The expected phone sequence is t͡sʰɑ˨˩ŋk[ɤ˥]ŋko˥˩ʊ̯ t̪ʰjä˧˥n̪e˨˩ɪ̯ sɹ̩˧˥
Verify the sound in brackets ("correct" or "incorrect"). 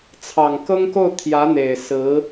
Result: correct